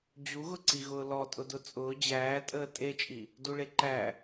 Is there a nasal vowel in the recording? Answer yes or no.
no